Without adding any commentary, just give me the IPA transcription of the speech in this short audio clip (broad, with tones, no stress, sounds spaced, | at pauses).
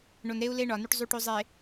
ɳ o˨ n ɾ e˦ u̯ l e˦ ɳ ɒ˨ n y˦ ʈ zˤ u˦ ʈ o˦ zˤ e˨